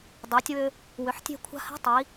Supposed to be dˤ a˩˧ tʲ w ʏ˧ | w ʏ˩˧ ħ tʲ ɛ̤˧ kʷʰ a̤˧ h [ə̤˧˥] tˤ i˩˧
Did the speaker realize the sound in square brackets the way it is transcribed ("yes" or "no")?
no